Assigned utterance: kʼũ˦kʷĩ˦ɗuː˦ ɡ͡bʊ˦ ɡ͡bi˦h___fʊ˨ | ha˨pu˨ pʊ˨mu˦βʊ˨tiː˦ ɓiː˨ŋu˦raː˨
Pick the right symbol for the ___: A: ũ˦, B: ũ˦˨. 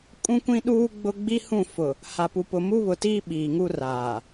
B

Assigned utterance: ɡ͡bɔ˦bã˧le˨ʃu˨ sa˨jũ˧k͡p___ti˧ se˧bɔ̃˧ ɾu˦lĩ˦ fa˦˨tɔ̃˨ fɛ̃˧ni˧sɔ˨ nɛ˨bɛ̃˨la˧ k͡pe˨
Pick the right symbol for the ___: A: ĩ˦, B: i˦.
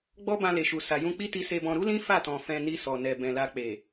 B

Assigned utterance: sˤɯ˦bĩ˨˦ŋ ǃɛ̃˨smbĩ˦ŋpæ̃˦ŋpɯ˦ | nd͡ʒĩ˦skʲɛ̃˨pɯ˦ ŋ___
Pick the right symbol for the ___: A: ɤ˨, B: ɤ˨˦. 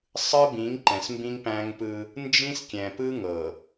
A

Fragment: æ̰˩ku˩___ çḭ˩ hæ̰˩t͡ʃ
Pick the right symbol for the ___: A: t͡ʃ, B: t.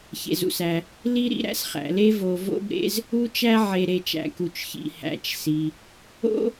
A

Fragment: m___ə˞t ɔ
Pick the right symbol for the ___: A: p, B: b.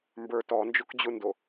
B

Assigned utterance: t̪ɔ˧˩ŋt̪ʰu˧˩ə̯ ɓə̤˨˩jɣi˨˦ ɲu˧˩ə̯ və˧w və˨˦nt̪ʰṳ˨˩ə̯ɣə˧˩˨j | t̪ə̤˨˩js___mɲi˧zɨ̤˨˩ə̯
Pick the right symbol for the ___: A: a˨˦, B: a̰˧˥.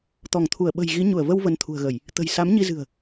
A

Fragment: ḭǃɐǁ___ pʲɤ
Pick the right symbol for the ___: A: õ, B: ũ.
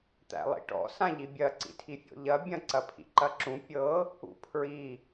B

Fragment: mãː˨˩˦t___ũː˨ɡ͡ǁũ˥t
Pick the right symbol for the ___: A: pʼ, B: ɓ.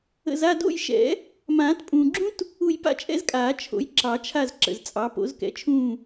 A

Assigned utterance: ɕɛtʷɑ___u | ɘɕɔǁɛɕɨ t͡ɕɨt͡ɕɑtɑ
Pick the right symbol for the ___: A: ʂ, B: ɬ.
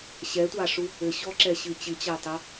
A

